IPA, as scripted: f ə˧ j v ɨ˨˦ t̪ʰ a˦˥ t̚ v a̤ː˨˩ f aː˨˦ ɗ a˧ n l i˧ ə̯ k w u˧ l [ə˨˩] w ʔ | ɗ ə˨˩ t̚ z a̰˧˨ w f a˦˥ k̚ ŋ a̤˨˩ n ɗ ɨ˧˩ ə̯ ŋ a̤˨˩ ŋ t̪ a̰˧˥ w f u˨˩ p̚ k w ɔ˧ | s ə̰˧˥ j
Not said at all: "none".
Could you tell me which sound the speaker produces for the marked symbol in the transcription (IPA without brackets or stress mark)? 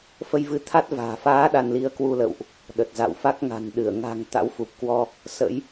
ə̰˧˨